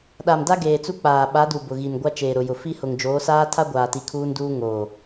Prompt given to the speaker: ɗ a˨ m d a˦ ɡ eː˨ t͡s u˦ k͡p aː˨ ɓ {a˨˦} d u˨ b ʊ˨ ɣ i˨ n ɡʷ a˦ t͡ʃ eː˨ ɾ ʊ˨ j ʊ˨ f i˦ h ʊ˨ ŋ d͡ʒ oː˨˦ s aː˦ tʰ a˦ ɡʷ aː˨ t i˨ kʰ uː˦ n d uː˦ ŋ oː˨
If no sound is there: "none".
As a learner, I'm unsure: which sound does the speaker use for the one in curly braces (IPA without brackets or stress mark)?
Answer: a˨˦